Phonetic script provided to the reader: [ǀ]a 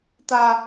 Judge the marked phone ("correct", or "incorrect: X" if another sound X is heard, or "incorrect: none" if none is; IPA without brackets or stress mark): incorrect: t